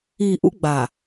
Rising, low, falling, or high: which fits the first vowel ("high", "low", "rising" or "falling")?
low